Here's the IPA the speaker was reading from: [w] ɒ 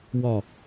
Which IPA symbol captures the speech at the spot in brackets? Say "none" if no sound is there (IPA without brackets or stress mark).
w